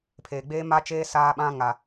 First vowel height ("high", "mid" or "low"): mid